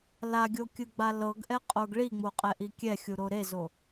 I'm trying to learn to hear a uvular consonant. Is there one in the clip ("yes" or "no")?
yes